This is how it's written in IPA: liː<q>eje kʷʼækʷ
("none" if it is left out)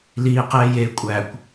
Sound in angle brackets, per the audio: q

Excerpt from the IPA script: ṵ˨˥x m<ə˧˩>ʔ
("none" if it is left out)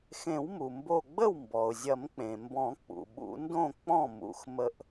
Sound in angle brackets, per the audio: ə˧˩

